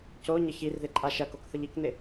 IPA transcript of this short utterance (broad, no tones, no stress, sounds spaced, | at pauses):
c o ɲ ə ç i r ð ɪ ǃʼ a ʃ ɐ k o k θ ə ʎ i k n̪ ɪ